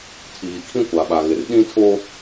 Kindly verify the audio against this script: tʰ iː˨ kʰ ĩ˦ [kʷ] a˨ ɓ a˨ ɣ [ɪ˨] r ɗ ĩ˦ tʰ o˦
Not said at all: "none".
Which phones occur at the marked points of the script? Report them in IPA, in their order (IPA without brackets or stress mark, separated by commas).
kʷ, ɪ˨